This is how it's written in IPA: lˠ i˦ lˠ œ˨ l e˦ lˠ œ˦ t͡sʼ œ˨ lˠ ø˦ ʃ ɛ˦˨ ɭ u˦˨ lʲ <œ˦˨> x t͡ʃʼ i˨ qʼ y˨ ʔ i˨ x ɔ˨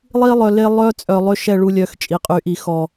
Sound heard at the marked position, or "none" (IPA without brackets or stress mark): œ˦˨